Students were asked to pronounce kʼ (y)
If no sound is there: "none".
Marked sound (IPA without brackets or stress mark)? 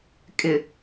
ɪ